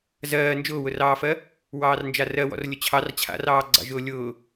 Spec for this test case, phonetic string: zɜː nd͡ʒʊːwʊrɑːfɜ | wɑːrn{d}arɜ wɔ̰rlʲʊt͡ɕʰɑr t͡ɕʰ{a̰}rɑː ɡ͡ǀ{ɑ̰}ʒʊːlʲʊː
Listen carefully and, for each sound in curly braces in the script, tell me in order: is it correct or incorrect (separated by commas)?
incorrect, correct, correct